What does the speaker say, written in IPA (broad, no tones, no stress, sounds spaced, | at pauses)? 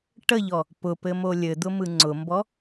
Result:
ʈ ə ʎ ɔ | p ʊ p ɘ m o lʲ ɘ d̪ ʊ m ɯ ŋ͡ǀ ʊ m b ɔ